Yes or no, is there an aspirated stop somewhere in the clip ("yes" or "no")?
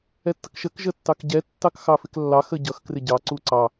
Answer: no